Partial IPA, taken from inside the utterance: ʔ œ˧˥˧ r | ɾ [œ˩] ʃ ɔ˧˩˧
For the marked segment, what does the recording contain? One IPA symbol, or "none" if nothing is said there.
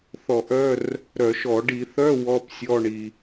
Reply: œ˧˩˧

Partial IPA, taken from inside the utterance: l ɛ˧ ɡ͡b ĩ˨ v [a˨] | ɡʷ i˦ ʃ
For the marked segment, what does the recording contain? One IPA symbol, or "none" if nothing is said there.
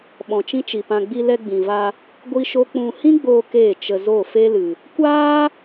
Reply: a˧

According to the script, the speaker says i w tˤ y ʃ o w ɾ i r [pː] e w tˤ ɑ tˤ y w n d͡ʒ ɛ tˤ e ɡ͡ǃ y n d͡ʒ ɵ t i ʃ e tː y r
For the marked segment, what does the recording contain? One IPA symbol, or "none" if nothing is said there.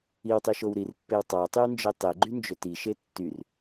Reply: pː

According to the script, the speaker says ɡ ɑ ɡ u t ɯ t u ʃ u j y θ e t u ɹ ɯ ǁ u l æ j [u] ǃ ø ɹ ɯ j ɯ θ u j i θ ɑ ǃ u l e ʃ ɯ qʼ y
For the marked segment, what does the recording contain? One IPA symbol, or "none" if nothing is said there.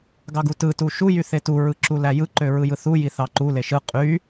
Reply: ɯ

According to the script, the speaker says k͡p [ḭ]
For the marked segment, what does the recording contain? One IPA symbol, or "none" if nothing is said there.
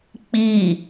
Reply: i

